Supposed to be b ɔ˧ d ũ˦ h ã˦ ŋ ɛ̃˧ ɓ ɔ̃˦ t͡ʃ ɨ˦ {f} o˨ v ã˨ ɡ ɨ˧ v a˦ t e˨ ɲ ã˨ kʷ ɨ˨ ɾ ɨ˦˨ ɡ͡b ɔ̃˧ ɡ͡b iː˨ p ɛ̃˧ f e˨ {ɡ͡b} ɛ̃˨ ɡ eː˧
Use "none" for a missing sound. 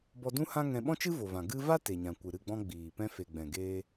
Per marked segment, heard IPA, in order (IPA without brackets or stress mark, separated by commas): v, ɡ͡b